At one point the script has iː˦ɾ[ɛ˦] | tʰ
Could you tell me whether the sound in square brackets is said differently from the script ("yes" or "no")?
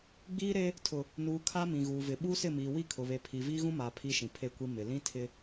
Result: yes